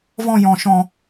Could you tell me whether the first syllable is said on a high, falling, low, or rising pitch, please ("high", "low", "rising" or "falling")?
high